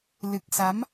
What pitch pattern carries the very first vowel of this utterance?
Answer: low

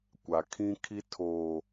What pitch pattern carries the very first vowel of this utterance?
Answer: low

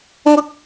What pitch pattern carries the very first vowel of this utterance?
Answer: high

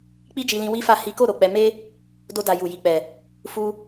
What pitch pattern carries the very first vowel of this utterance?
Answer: high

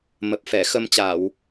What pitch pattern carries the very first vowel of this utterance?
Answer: low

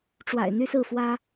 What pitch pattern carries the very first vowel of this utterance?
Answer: low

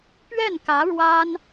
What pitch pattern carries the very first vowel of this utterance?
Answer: falling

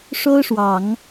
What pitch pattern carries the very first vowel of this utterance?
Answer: high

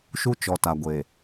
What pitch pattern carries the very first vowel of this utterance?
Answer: high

